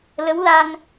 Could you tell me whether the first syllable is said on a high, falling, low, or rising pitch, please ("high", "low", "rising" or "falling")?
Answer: rising